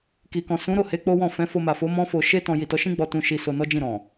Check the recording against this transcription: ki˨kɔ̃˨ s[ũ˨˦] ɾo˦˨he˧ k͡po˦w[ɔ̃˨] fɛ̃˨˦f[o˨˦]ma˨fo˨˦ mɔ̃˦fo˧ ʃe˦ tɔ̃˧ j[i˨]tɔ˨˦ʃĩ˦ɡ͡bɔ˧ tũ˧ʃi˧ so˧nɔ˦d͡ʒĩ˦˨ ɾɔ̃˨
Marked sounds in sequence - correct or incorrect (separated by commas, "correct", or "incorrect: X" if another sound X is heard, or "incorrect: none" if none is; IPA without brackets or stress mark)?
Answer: correct, incorrect: ɔ̃˦˨, incorrect: o˧, correct